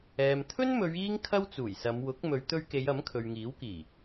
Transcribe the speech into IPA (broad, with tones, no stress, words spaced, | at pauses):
ɛː˨m t̪ʰɵ˥nmɵ˨˧ɥ iː˥ŋkʰɐ˥wt͡suː˨˩jsɐ˨˧m wʊ˨˥k̚ mɵ˨˧ɥt̪ɵ˧ɥke˨˧j ɐ˨˥mkʰɵ˨ɥŋiː˨˥wkiː˨˩